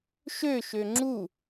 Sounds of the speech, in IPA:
ʃ ø ʃ ø ŋ͡ǁ u

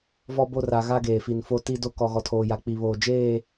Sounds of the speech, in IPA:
v ɔ˦ b o˦ r a˨ ɣ a˦ ɡ eː˨ f i˨ n f o˦ t i˦ d o˦ k ɔ˨ ɣ ɔ˨ tʰ oː˨ j a˨ k͡p i˨ β oː˨ d͡ʒ eː˦˨

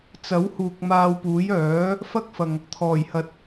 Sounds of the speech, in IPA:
t͡s ɐ˨˥ w h uː˨ k̚ m aː˧ w p uː˨˥ j œː˨˥ | f ɐ˥ k̚ f ɐ˨ ŋ | t̪ʰ ɔː˨˩ j h ɐ˨ t̚

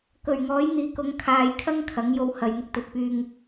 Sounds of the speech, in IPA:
k ɵ˨˩ ɥ ŋ ɔː˨˥ j n̪ iː˨˧ k ʊ˨˥ ŋ kʰ aː˨ j kʰ ɐ˥ ŋ kʰ ɐ˨˥ ŋ j o˧ w h ɐ˨ j n̪ ɪ˨ k̚ t̪ ɵ˨ t̚ p yː˧ ŋ

